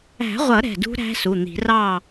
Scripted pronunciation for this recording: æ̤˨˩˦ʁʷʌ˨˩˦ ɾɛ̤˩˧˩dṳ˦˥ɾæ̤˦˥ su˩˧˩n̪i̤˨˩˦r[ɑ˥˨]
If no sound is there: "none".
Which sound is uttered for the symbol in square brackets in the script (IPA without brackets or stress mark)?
ɑ˥˨